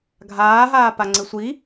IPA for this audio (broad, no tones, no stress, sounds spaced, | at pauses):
ɡʱ aː ɦ aː p a ŋ͡ǀ ɪ sʷ i